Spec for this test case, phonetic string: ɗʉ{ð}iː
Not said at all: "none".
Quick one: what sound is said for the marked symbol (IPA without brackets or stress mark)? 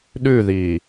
ð